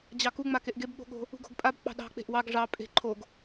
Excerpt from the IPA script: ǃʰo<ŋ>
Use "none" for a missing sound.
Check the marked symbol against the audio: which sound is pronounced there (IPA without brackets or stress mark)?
ɡ